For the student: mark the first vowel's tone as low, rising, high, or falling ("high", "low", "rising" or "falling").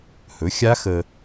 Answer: rising